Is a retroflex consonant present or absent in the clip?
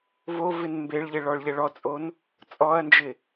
present